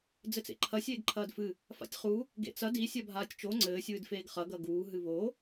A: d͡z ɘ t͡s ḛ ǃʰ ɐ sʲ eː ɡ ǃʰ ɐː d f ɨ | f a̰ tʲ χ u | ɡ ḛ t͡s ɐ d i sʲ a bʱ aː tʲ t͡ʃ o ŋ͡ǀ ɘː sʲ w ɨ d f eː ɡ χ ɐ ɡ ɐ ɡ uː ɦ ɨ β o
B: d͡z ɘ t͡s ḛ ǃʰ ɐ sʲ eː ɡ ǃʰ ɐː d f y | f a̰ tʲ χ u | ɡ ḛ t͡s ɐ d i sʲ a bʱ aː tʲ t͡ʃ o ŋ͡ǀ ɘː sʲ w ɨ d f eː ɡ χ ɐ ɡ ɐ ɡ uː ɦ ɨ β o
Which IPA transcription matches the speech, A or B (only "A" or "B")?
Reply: A